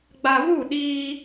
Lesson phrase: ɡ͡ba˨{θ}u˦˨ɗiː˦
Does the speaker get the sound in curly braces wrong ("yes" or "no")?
yes